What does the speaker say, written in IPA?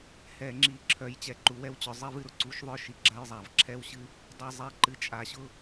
h ɛ˧˩˧ ŋ͡ǁ i˧˩˧ ǁʰ œ˧˥ j t͡ɕ ɛ˧˩˧ ǃ u˧ w ɛ˥ w t͡ɕ œ˧ zˤ i˥ v ɨ˥ ɾ ʊ˧˥ ǀ u˧˥ ʃ ðˤ œ˥ ʃ i˧ ɡ͡ǁ a˥ j zˤ a˧˩˧ v ǁʰ ɛ˥ w ɕ ɨ˥ | dˤ i˧ zˤ i˧˥ ǃ ɨ˧ t͡ʃʼ a˧ ɕ ʊ˥

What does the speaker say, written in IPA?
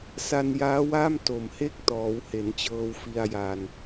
s a˧ n j aː˦˥ w aː˥˩ m t o˨˩ m h e˦˥ k̚ t ɔː˩˦ w h e˩˦ n t͡ɕ ɤː˧ w f i˧ a̯ j a˧ n

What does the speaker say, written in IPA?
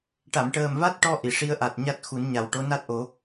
ʈ a˨˩˨ m ʈ əː˨˩ m v a˦˥ t̚ ʈ ɔ˧ ʔ i˨˩˨ ʂ i˧˥ ə̯ ʔ a˨˩ t̚ ɲ a˦˥ t̚ x u˨˩˦ n ɲ a˨˩ w ʈ o˧˥ n a˦˥ t̚ ʔ o˨˩˦

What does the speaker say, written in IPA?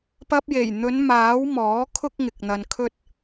p ɐ˧ p̚ j e˨˩ j n̪ ɵ˨˧ n m aː˨˥ w m ɔː˨˥ kʰ ʊ˥ k̚ ŋ ɪ˨ k̚ n̪ ɐ˧ n kʰ ɵ˥ t̚

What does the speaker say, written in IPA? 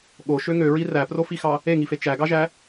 ɠ o ʃ ø ŋ ø ɹ i r æ p r o f i x ɑ | e ŋ i f e t͡ʃ æ ɡ ɑ ʒ æ

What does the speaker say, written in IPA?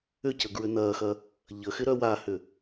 ʏ c ə ɡ ɹ ʏ n ɐː x ɐ | ʎ ə x ɪ ɾ œ w a h ʏ

